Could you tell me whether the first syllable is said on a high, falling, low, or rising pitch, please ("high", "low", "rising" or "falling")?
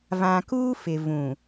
low